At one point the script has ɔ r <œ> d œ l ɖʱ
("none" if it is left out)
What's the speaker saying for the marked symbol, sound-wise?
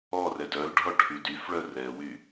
ɛ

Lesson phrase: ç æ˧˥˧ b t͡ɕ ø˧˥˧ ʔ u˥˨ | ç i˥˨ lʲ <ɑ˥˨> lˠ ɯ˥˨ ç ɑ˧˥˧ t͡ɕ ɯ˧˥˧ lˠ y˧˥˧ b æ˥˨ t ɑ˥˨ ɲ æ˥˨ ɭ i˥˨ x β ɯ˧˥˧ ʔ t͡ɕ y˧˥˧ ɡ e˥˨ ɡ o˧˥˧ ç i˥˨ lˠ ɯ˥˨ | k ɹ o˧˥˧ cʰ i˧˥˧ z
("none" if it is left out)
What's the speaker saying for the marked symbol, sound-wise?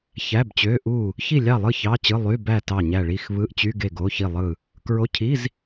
ɑ˥˨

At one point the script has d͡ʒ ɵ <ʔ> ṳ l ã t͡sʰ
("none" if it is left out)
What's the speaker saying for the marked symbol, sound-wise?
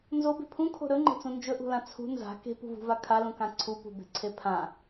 ʔ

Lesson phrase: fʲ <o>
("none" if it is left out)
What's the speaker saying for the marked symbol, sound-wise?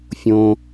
õ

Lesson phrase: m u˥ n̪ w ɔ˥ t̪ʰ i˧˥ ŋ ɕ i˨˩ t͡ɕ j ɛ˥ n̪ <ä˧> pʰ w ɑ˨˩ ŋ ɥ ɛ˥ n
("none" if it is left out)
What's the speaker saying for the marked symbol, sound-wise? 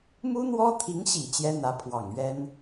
ä˧˥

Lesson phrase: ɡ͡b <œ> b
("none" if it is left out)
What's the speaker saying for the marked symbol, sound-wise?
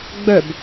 œ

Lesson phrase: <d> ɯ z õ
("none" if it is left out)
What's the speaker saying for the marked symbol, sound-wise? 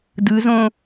d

